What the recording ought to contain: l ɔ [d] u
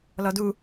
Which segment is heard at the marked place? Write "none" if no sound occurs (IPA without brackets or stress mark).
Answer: d